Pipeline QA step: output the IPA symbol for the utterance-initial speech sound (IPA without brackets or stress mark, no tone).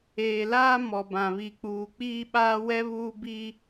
eː